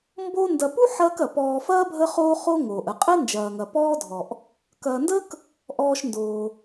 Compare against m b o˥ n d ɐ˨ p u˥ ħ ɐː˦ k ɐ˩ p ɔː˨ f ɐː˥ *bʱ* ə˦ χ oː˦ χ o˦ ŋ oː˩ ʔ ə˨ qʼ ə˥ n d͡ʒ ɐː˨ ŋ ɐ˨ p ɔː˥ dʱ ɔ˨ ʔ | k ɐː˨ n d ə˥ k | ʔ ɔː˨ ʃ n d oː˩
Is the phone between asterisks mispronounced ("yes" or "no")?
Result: no